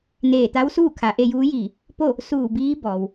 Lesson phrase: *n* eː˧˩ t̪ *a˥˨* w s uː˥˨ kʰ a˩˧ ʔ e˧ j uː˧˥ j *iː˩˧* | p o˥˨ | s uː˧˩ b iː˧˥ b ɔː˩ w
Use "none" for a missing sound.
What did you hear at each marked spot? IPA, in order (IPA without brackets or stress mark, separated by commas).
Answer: n, a˧˥, iː˧˩